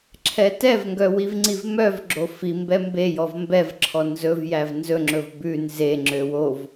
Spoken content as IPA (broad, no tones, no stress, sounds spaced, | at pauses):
ǁʰ ɛ t ɛ v ŋ ɡ œ w i v ŋ͡ǀ i v m œ v ɡ͡ǁ o f i m b ɛ m b e j ɔ v m b ɛ v ǁʰ ɔ n z ɵ v j æ v n z ɵ ŋ͡ǁ ɵ v b ʉ n z e ŋ͡ǁ ø w o v